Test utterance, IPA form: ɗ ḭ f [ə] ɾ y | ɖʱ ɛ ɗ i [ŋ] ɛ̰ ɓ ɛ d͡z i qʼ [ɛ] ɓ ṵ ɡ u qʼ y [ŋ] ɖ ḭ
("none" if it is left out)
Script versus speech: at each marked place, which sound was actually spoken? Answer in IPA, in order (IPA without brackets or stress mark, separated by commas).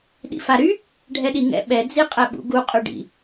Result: a, ŋ, ɛ, none